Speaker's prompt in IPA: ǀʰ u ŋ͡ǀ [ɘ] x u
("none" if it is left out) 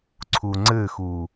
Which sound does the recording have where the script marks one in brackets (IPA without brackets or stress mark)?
ɘ